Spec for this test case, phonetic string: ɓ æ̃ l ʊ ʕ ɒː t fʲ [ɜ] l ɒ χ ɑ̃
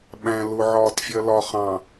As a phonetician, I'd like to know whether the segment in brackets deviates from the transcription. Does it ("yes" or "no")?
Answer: no